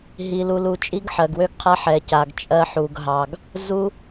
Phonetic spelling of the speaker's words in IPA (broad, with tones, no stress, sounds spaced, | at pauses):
ɦ i˨ l u˨ l u˨ t͡ʃʼ i˦ ɡ ħ ɜ˨ ɡ w ø˦ ɡ qʰ a˦ ħ ɛ˨ c a˨ ɡ t͡ʃʼ ɜ˦ ħ u˨ ɡ ɦ ɑ˨ ɡ | z u˦